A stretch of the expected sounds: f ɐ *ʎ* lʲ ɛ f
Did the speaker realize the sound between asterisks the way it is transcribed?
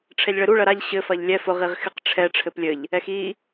yes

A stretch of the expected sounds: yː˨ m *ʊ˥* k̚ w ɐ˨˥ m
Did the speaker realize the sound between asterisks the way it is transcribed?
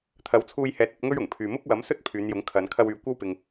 yes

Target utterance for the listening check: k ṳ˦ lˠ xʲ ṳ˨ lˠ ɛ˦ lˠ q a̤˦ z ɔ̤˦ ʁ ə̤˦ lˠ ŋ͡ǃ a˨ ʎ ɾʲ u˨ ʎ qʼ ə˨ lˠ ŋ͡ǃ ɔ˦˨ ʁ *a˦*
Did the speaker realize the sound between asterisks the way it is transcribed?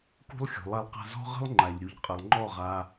yes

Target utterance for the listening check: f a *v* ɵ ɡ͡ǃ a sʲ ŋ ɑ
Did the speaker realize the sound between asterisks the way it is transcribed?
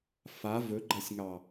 yes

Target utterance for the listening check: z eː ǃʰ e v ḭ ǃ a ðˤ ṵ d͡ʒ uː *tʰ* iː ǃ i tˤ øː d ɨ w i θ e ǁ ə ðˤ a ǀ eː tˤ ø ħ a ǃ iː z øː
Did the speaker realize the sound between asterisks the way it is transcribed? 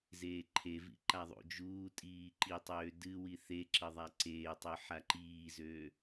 no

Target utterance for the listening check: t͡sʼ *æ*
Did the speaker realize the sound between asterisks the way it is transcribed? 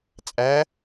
yes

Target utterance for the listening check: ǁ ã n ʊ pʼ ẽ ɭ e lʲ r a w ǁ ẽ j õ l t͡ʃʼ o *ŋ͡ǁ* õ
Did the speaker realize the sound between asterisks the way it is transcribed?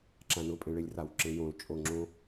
yes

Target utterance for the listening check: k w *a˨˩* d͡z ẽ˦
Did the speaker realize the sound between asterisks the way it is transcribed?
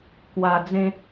no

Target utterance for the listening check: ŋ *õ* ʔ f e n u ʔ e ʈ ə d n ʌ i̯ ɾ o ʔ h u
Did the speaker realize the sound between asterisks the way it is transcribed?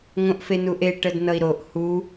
yes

